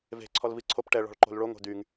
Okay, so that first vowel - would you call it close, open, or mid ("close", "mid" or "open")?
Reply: mid